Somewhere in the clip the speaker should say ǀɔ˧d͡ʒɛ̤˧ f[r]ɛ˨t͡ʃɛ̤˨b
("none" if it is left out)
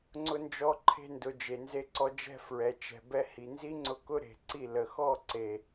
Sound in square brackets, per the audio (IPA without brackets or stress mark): ɹ